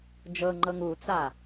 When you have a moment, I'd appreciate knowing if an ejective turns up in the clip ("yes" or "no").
no